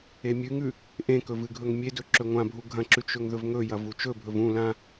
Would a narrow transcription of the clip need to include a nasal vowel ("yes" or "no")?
yes